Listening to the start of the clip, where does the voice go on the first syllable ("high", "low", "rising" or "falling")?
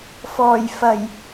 low